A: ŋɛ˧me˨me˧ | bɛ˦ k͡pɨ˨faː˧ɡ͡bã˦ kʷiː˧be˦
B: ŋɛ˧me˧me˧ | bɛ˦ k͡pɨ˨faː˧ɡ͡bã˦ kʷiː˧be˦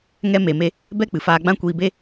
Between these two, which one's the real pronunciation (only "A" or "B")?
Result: A